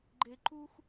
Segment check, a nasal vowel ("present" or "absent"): absent